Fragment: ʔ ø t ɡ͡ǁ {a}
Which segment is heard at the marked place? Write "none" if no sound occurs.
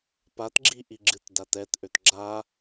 a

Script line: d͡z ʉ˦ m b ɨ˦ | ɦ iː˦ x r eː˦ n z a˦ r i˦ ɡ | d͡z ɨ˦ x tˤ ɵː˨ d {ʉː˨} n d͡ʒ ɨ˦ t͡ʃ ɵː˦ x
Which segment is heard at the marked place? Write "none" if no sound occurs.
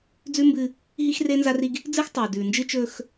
ʉː˨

